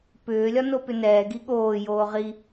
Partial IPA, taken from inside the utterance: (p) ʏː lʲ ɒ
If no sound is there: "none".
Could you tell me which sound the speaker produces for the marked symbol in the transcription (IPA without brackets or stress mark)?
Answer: p